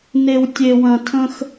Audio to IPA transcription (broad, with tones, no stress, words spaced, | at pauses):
ne˨w tʲe˨wɐ̃˨ tʰə̃˦x